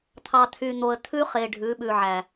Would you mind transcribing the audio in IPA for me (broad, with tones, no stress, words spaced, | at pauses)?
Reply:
t̪ʰɑ˨t̪ʰy˨ n̪o˨ə̯ t̪ʰʉ˦χe˨ ɖʱʉ˨˦ɓʉ˨ʕæ˨